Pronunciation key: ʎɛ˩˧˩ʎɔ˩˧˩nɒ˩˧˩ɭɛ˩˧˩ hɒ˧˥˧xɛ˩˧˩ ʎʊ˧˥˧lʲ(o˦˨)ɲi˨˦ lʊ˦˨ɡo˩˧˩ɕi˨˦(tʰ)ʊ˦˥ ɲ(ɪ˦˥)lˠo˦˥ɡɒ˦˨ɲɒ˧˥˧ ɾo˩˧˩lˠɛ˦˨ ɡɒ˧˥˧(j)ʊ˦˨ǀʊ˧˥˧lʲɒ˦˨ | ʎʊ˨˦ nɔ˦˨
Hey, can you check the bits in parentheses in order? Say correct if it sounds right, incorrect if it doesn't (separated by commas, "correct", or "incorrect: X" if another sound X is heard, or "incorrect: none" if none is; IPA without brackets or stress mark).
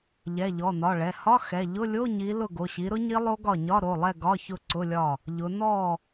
incorrect: o˧˥˧, incorrect: ɾ, incorrect: i˦˥, incorrect: ç